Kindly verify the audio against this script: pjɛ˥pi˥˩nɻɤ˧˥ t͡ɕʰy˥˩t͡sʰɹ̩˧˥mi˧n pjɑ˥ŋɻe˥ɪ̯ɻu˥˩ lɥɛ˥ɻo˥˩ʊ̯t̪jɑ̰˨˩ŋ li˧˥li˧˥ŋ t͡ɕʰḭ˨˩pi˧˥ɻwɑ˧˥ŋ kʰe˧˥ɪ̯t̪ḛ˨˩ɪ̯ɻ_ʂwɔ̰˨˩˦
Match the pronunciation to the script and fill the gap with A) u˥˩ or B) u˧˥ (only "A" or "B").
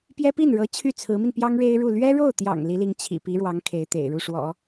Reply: A